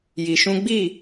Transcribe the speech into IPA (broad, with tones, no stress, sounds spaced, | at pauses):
j i˧ ʃ ũ˦ ɡ͡b i˦˨